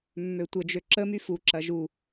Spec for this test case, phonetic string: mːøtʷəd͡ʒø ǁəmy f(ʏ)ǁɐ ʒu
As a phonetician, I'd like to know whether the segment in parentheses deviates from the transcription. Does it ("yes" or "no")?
yes